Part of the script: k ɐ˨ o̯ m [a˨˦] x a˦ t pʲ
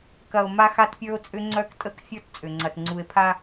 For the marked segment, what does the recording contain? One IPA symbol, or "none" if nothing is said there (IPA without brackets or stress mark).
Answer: a˦